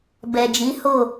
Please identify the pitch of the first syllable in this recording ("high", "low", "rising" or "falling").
low